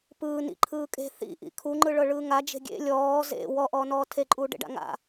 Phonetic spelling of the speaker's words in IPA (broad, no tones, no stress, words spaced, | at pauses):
pɯː nḭ ǃʰɯːkʼe̤ θḭ ʔḭkʰuŋ͡ǃɯ ɭɤɭɯːŋad͡ʒe̤ ɡʲḛ lʲɔː zḛ wɔʔɔːnɔː tʰeǃʼuːɖḛɖa̰ ŋa̰